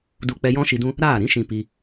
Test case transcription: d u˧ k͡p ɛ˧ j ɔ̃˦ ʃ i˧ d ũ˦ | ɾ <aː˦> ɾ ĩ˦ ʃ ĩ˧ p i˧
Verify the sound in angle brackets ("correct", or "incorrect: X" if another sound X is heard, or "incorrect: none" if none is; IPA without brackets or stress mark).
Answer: incorrect: aː˦˨